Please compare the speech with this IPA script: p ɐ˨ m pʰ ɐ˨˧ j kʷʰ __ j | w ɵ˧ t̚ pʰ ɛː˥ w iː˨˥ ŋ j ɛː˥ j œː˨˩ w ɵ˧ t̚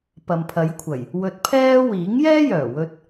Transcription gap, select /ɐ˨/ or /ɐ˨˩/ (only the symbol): ɐ˨˩